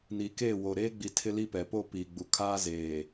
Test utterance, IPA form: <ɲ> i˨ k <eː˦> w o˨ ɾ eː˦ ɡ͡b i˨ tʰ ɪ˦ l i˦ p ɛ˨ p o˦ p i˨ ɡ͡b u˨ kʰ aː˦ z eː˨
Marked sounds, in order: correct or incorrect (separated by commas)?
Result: incorrect, incorrect